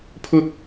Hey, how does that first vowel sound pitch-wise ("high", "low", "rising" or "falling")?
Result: high